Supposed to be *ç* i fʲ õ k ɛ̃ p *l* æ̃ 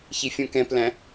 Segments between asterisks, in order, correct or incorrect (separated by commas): correct, correct